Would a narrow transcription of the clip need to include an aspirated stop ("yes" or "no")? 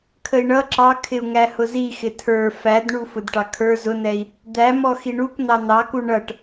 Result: yes